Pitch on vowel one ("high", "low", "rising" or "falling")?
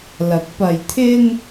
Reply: rising